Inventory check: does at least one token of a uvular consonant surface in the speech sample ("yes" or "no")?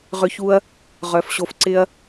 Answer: yes